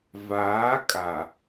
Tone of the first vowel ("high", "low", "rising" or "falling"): rising